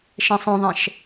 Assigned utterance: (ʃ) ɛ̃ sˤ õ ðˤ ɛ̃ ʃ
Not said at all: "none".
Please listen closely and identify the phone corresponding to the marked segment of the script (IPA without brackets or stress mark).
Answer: ʃ